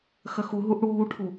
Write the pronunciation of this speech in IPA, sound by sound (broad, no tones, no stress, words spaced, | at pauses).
xɐxu ɦuʔɽuːʈʰu